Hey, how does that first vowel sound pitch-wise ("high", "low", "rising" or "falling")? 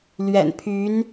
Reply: low